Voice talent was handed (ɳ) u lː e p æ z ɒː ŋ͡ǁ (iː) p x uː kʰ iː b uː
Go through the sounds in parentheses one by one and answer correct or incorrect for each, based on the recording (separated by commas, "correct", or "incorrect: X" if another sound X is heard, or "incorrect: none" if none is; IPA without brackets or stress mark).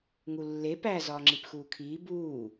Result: incorrect: ŋ, incorrect: i